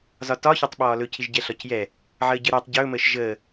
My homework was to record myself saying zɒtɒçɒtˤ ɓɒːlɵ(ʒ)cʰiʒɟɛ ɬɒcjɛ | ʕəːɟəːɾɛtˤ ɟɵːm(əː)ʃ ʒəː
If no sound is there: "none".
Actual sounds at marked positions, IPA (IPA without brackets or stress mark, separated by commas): none, əː